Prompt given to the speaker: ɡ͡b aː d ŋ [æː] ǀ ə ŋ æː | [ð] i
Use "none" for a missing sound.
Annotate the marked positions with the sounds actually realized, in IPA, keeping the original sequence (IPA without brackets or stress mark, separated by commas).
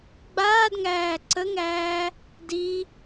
æː, d